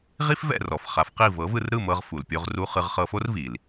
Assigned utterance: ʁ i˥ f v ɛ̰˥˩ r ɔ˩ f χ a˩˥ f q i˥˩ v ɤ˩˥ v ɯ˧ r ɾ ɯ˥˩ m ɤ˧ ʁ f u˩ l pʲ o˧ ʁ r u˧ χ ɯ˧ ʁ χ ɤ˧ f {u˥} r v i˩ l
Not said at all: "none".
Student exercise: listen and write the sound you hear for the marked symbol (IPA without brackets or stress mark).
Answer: o˥